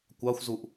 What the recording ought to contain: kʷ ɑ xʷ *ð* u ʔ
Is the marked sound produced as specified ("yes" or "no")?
no